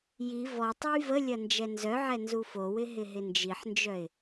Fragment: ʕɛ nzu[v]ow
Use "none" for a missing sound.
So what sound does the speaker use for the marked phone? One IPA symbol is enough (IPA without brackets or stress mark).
f